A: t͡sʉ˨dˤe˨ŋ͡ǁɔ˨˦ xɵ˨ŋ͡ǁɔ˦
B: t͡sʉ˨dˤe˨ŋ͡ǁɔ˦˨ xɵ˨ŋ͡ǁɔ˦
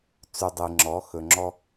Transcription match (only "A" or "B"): A